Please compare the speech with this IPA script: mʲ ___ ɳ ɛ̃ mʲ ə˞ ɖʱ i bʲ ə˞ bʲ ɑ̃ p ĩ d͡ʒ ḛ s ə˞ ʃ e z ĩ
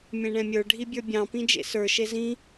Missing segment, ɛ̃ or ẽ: ẽ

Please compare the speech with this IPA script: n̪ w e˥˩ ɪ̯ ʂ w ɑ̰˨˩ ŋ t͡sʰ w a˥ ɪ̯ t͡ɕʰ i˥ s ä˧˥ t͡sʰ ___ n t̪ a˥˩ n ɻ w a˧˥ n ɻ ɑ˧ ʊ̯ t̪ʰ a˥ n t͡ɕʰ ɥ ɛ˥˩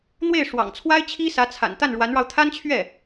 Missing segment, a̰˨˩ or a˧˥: a̰˨˩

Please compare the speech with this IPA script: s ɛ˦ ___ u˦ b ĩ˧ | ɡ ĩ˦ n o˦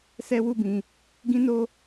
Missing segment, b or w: w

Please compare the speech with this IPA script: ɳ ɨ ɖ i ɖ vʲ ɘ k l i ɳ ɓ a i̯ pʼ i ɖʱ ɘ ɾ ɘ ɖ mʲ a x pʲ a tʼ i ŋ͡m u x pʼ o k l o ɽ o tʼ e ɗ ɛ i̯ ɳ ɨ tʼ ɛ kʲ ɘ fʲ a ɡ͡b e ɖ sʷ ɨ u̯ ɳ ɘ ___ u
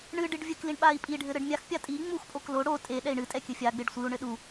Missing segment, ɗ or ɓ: ɗ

